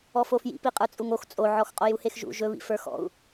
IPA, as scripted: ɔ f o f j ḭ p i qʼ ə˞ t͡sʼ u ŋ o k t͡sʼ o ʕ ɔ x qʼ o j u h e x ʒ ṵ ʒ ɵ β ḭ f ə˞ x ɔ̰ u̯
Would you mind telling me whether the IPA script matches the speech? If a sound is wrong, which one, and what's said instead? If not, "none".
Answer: k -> x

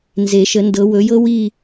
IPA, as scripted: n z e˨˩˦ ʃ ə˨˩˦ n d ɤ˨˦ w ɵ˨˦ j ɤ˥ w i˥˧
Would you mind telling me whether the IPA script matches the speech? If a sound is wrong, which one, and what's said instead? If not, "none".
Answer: none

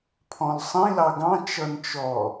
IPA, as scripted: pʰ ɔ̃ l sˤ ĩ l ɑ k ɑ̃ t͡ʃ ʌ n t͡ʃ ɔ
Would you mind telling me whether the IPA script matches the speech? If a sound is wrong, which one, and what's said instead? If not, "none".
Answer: k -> ɡ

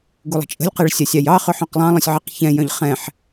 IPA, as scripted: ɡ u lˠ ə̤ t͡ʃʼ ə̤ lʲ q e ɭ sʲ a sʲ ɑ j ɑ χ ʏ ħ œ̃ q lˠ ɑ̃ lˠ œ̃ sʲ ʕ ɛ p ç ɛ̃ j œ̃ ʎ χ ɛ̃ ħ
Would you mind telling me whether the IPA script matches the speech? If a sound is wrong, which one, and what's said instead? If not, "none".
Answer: p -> q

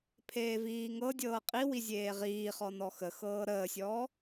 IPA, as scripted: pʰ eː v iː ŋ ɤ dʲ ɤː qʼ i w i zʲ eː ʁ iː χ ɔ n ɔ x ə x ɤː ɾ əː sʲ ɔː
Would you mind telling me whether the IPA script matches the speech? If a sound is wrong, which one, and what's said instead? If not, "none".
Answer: none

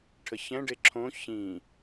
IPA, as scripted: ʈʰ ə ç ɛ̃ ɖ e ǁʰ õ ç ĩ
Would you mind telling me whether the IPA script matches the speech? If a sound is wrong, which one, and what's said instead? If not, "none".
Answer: none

